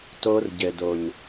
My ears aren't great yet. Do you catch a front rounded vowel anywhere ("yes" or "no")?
no